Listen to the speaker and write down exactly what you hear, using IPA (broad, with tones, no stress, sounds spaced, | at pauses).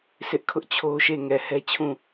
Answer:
sʰ ɪ˦ ʔ kʰ ʊ˦ ʔ t͡ɕʰ o˦ ʃ e˦˨ ŋ ɛ˨ h ɛ˦ t͡ɕʰ ũ˦˨